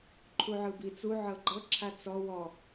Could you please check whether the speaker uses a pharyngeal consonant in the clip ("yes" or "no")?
yes